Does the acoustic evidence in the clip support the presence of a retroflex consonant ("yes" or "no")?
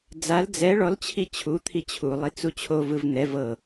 yes